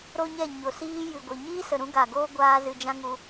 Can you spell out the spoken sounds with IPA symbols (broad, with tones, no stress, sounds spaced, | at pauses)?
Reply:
ɾ o˦ ɲ ɛ˦˨ ɲ o˨ s iː˦ j ɨ˨ ɡʷ i˨ ɲ iː˦ s ə˨ ɾ ũ˦ ɡ a˨ ɡ oː˦ ɡʷ aː˦ z ɨ˧ d͡ʒ ã˦ ŋ u˧